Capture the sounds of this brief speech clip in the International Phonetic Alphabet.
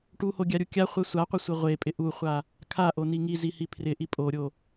ʈuhoɡʲaɾʲu kʲaχʷɛ sʷaqʷɪsʷɪ ʁʷepʼɪ ʔuχʷa | kʰaʔoni ŋizihi pʰrɪʔi pʼoɾʲo

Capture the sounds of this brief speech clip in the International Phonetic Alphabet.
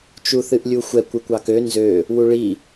t͡ʃuθɨʔlʲuxʷɛkʷ ɨkʷɑkø nzø | wuɭi

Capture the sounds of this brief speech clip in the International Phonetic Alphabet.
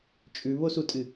t͡ʃʼʉβosutʼɨ

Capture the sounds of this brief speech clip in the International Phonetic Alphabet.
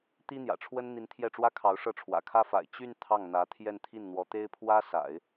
t̪i˥n̪jä̰˨˩ʈ͡ʂʰwə˥n n̪i˧˥nt̪ʰjɛ˥˩ʈ͡ʂwä˥kʰɑ˧˥ʊ̯ ʂɤ˥˩ʈ͡ʂʰwä̰˨˩kʰä˥fa̰˨˩ɪ̯ t͡ɕy˥˧n t̪ʰɑ˥˩ŋn̪ä˧˥ t̪ʰjɛ˥˧nt̪ʰi˥˩nn̪wɔ˧˥t̪e˥ɪ̯ pʰwä˥sa̰˨˩˦ɪ̯

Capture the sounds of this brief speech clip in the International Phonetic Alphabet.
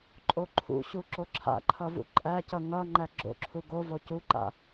ǃʼoǃʰṵɕu ǁoǁʰa̰ǃʰʌ vṵǃʼæcʌ ŋʌ ŋ͡ǃæɡ͡ǁo̰ǁʰu ɡo vocuǃa̰

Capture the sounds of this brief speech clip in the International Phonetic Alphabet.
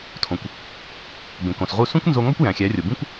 tʰõ˩kʷ | bẽ˩kõ˩sʁu˥˩ sũ˥kʷnzo˧ŋɒ˥kʷ jæ̃˩xʲæ˩˥rʲo˩ bĩ˥kʷ

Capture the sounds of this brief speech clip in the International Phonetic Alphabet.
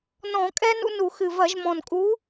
nɔ̃˧˩˧kʼɛ˦ nṵ˦nu˧˩˧ xɨ˨˩vɐ˧˩˧ʒ mɔ̃˨˩nkʼu˨˥

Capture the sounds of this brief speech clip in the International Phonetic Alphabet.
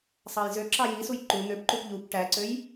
sˤɑjzøǁɑ jisuj ǃu n̪øpǃup ʎup ʈæǀøj

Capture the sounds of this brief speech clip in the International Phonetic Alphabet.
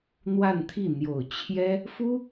n̪wa˥˧nt̪ʰi˥˩ n̪jo˨˩ʊ̯ t͡ɕʰjɛ˥ | fu˥

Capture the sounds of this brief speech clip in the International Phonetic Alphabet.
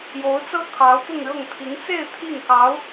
jo˧˥ʊ̯t͡sɤ˥ kʰɑ˧˥ʊ̯ t̪ʊ˥˧ŋɻɤ˥˩ŋ t̪ʰi˧˥ŋt͡se˥˧ɪ̯ t̪ʰi˥˩ŋkɑ˧˥ʊ̯

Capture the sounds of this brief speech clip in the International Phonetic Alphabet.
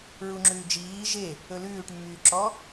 ɹuŋ͡ǁʉː d͡ʒiː ʒe | ɵlʉːʈmːyːǁɔ

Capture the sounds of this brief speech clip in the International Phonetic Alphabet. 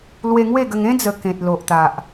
lwe˧ŋwe˥˧ɡə˧ŋ ẽ˦d͡zə˨˩ kẽ˨t̚lo˨ʔt̪a˨ʔ

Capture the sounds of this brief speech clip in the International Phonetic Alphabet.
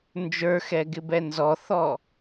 nd͡ʒə˞xɛɡɪbɛ nzɔθɔ

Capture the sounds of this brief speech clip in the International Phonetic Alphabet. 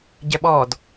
ɟɛɓɔd

